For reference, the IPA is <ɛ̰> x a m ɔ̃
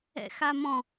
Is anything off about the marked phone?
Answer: no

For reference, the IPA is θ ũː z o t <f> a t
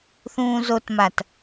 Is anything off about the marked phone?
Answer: yes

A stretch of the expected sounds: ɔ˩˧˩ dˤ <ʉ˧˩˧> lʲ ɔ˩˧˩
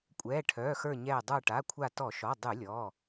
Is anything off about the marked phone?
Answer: no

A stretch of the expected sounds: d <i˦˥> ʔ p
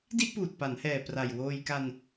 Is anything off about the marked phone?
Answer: yes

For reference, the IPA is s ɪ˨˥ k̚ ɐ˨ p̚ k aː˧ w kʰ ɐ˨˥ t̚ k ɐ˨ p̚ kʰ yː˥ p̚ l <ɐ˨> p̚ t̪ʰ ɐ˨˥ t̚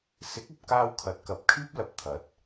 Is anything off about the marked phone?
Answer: no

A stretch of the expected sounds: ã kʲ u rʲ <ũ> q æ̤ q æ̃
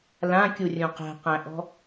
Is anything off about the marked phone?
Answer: no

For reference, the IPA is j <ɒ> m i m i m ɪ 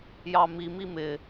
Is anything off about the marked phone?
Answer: yes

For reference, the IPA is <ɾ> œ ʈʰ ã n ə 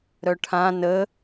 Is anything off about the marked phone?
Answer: no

